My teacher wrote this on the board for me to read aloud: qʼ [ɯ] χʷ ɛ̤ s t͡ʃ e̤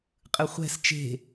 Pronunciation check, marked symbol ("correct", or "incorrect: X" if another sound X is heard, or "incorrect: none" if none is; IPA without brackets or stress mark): correct